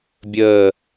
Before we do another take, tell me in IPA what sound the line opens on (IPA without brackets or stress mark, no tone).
bʲ